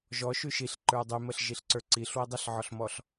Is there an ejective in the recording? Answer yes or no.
no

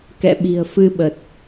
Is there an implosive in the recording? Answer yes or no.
yes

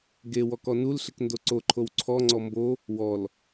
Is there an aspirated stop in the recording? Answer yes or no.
yes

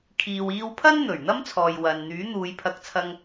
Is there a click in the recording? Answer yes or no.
no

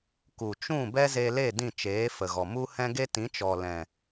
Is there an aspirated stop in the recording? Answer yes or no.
no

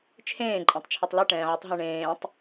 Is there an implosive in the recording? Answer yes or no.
no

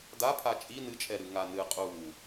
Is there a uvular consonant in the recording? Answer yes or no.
yes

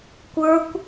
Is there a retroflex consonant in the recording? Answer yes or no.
no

